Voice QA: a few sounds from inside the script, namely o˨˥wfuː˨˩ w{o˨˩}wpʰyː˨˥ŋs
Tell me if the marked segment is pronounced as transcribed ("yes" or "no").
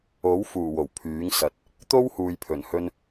yes